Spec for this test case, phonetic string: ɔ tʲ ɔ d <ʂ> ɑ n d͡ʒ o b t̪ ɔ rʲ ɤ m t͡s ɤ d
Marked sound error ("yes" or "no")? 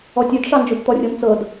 no